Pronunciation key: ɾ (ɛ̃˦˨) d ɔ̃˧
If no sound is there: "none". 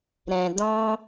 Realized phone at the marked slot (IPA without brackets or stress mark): ɛ̃˨